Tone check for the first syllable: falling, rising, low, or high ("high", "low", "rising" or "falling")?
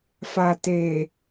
low